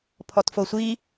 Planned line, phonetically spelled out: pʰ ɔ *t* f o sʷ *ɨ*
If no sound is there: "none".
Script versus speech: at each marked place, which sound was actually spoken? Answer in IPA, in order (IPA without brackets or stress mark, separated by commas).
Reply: t, i